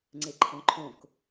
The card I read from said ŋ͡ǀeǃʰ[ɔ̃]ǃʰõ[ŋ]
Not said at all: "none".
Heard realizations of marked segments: ɔ̃, k

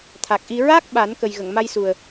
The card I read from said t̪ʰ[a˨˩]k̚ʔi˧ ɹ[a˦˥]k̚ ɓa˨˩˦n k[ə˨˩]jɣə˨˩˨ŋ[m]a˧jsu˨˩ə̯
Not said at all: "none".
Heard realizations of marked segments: a˨˩, a˦˥, ə˨˩, m

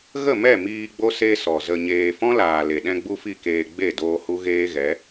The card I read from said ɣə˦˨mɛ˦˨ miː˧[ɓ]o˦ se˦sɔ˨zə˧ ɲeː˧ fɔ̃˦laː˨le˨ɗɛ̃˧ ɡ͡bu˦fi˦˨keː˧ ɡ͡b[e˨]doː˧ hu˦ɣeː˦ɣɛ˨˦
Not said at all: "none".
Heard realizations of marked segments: ɡ͡b, e˦˨

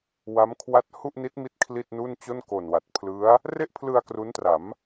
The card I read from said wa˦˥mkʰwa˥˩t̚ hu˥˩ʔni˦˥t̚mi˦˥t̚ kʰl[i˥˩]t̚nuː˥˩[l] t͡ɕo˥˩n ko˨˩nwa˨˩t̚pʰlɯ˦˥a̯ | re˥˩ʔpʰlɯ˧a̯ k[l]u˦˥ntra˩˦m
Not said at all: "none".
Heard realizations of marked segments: i˥˩, n, r

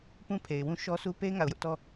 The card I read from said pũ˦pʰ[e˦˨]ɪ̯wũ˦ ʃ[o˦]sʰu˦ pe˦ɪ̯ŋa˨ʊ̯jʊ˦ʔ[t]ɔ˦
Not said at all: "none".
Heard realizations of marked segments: e˨, ɔ˦, t

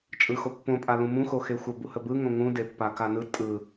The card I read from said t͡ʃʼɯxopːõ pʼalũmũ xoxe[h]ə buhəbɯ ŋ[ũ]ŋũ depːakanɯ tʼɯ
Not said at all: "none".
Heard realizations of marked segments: xʷ, õ

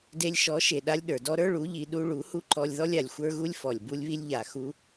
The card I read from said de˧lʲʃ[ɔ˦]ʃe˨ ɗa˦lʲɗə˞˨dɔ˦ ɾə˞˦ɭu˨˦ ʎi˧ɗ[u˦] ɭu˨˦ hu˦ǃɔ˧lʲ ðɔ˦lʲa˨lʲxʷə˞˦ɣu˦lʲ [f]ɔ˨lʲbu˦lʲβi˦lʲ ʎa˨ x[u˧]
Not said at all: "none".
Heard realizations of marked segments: ɔ˨˦, u˦, f, u˦

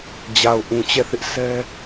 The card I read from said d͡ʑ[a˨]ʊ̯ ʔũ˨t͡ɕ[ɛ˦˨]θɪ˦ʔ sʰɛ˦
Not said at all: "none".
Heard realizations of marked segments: a˨, ɛ˦˨

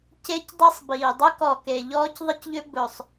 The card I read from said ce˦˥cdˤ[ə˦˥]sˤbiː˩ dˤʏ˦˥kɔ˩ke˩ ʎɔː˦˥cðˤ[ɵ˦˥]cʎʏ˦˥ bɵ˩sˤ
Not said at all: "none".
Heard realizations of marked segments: ɛ˦˥, ə˦˥

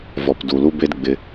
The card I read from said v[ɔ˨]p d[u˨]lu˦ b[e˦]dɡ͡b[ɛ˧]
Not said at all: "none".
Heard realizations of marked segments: ɔ˨, u˨, e˦, ɪ˧

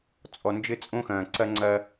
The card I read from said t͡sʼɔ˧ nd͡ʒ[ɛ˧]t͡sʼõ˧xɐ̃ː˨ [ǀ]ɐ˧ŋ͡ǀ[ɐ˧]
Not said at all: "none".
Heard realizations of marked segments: ɘ˧, ǀ, ɐ˧

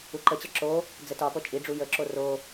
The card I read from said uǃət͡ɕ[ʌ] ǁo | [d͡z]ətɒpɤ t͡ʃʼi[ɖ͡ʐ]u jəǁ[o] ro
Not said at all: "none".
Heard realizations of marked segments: ʌ, d͡z, ɖ͡ʐ, o

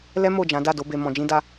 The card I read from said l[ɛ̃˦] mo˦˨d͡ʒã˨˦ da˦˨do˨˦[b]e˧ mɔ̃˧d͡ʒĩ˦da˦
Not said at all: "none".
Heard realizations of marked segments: ɛ˦, b

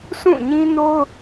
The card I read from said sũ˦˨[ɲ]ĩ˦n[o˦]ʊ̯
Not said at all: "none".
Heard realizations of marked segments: ɲ, o˦

